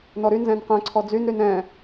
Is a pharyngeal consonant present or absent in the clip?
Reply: absent